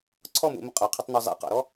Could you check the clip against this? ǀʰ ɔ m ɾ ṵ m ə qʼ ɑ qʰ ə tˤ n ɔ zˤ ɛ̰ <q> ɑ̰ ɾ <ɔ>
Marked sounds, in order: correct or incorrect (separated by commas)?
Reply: correct, correct